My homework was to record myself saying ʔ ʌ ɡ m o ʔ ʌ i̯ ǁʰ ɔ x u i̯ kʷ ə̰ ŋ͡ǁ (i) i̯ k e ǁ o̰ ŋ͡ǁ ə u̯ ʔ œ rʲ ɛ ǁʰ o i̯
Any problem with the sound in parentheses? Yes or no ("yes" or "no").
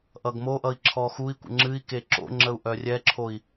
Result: yes